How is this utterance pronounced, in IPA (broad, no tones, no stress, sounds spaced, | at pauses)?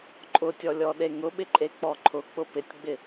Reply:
ǃʼ ʊ tʲ ɔ lʲ ɔ ɗ e ŋ ʊ ɓ ɪ ǃʼ e k͡p ɔ ǃʰ ʊ k͡p ʊ p ɪ tʲ ɡ͡b ɪ